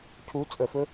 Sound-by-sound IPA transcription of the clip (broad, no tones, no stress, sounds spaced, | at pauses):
cʰ u t͡sʼ ə f ɵ